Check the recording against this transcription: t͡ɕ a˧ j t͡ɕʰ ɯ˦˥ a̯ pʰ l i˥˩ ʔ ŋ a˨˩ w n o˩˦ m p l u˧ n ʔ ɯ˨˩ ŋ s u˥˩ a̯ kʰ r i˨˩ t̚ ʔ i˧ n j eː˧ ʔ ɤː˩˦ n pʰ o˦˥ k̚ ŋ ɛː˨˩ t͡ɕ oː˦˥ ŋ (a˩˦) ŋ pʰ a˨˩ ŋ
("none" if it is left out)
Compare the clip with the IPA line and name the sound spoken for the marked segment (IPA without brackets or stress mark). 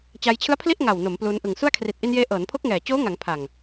a˩˦